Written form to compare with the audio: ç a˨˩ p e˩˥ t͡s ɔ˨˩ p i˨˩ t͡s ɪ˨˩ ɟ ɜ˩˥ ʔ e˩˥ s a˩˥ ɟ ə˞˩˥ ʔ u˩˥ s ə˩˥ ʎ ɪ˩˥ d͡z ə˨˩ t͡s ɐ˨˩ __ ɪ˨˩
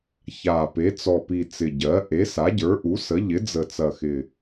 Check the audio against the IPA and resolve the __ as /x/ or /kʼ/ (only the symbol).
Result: x